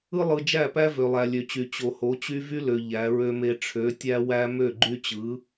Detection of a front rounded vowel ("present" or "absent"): present